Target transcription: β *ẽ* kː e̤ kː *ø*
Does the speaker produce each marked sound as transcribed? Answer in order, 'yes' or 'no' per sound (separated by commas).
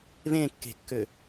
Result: yes, yes